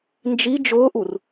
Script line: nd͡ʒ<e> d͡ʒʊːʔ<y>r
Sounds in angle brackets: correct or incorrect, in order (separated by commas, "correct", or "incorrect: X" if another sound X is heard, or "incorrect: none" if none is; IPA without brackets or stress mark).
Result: incorrect: i, incorrect: u